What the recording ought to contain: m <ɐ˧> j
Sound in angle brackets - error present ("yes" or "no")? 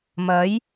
yes